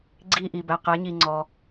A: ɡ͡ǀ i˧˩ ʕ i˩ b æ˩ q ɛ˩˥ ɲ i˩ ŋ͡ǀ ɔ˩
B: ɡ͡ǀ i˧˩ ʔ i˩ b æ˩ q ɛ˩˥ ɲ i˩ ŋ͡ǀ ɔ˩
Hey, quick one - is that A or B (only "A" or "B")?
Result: B